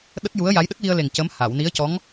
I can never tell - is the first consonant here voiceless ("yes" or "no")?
no